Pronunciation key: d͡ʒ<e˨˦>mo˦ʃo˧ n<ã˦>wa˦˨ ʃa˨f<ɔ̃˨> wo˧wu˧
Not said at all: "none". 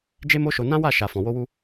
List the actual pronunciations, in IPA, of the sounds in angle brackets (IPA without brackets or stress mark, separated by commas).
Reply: e˦, ã˦, ɔ̃˨